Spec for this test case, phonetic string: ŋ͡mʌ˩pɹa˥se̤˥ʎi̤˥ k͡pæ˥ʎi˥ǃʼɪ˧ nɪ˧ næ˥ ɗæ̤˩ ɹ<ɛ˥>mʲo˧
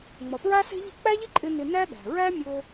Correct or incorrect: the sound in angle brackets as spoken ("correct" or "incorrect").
incorrect